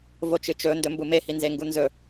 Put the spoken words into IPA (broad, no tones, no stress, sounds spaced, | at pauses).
v o t͡ʃ ɨ t͡ʃ ɵ n d ɵ m b u m e h i n z e ŋ ɡ u n z ɵ